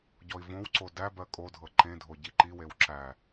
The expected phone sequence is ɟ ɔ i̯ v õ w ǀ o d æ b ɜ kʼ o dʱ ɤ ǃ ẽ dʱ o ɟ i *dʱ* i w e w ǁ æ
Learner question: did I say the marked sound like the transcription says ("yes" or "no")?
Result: no